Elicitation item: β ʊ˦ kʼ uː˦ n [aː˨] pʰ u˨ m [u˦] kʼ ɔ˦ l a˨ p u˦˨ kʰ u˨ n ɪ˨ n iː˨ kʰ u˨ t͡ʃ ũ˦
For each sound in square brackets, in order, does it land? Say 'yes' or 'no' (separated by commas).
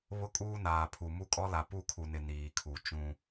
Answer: yes, yes